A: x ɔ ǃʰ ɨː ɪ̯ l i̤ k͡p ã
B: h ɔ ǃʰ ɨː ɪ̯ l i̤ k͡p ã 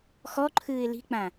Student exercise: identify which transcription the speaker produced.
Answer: A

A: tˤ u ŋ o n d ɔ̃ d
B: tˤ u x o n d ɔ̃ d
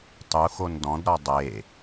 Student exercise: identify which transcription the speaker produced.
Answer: B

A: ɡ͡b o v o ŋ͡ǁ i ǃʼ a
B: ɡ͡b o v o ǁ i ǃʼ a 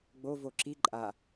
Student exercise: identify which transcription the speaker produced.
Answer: B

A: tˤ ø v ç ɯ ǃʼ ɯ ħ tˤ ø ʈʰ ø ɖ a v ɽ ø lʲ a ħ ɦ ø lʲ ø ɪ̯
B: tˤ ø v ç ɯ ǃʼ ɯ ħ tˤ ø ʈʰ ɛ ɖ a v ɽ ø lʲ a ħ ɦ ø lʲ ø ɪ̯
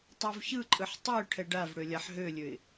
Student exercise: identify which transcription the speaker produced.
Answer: B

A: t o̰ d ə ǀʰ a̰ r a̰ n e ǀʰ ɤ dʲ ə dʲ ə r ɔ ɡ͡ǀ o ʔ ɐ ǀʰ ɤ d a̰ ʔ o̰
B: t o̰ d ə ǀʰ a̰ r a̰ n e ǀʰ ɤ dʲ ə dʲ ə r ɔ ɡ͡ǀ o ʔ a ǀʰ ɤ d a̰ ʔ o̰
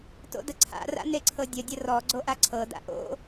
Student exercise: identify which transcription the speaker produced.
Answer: B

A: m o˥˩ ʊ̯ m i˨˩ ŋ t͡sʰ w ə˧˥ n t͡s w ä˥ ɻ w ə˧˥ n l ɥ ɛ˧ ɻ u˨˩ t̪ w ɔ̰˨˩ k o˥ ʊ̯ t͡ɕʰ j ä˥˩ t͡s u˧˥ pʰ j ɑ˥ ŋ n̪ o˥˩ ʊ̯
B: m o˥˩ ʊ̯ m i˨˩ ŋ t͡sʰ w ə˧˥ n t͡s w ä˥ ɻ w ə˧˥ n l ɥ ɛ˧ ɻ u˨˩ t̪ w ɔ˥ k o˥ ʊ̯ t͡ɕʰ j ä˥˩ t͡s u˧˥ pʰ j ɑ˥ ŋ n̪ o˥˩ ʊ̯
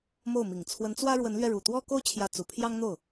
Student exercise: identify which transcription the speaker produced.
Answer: B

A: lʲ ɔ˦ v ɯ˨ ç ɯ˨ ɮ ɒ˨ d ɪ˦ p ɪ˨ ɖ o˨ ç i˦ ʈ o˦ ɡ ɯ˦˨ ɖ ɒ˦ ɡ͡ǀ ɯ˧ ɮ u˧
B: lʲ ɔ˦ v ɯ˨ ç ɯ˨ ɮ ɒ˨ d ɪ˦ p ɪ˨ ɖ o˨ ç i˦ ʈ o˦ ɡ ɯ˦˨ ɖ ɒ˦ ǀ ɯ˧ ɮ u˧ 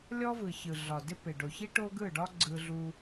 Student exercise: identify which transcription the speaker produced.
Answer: A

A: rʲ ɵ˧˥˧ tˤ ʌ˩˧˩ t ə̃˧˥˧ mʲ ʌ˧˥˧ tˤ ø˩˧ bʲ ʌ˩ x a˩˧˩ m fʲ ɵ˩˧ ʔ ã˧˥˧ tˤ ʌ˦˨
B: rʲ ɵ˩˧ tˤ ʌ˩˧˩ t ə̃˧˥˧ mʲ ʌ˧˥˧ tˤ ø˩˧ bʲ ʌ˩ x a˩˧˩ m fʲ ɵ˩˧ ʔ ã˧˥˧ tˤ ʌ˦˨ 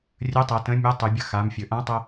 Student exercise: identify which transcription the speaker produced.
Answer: A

